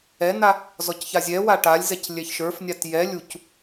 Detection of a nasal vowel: absent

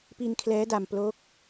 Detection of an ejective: absent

